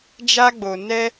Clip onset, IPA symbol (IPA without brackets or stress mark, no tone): d͡ʒ